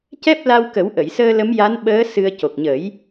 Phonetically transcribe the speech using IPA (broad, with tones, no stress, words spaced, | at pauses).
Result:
cɛ˦˥p̚ la˧wkə˨˩˦wʔə˨˩˨jsəː˧ lə˧˥mja˧˥n ɓəː˧˥ sɨ˧ə̯ co˨˩k̚ɲə˨˩˦j